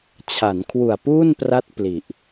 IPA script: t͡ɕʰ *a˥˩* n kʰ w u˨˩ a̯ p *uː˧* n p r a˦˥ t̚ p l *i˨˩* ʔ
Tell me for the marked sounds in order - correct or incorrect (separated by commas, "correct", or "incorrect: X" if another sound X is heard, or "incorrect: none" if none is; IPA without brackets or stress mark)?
incorrect: a˩˦, incorrect: uː˥˩, correct